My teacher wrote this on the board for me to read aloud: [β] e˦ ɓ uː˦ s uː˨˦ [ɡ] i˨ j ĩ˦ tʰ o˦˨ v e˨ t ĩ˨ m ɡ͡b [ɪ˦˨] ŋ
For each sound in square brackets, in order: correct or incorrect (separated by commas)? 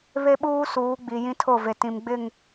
correct, incorrect, correct